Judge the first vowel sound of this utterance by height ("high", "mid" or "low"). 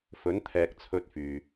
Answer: mid